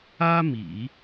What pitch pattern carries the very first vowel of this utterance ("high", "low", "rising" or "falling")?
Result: high